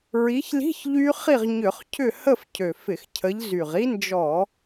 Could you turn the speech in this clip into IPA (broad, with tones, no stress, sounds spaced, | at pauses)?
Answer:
ɹ i˨˦ ç l i̤˧˥˧ ç ʎ y˦˥ χ i˥˨ ʁ ɲ ʏ˧˩˧ χ cʰ ʏ˥˨ h ə˥˨ f cʰ ø˨˩ f ɪ˧˩˧ x cʰ ə˨˦ ʎ z y˨˩ ʁ i˦˥ n d͡ʒ ɔ˧˩˧